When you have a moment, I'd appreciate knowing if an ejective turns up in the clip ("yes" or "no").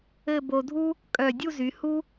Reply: yes